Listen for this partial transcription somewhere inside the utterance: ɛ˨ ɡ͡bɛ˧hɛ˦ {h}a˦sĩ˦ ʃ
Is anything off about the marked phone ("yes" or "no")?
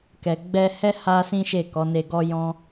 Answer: no